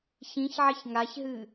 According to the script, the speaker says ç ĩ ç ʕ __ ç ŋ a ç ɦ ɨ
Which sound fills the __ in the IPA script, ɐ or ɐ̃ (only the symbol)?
ɐ